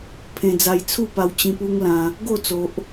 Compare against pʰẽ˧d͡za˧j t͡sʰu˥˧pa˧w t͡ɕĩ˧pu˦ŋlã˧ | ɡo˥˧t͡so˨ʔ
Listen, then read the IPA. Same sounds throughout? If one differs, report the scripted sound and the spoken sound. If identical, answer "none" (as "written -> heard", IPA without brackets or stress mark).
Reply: none